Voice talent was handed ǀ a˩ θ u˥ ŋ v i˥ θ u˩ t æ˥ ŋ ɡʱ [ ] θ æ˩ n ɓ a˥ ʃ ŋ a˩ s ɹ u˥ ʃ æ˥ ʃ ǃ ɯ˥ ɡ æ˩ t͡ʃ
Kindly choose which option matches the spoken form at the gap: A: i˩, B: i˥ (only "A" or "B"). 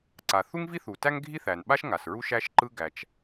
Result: B